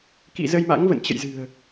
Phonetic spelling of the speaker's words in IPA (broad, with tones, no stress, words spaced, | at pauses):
kḭ˧˨zə˧jma̰˧˥ŋ və̰˧˨nt͡ɕə̰˧˨jzɨ̤˨˩ə̯